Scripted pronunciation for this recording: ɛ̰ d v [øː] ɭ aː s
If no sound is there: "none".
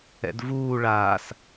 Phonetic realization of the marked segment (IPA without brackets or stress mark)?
uː